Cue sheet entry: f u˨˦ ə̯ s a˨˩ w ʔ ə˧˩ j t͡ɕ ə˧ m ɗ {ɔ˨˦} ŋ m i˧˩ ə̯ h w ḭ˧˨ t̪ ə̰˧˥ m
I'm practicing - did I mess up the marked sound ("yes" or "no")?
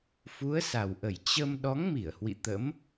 no